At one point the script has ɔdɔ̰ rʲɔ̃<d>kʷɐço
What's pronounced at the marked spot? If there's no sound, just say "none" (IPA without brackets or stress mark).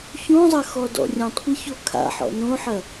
tˤ